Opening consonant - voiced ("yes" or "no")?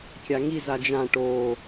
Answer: no